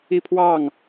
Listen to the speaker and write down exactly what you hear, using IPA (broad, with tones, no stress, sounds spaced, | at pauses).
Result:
i˦ pʰ w ɑ˥˨ ŋ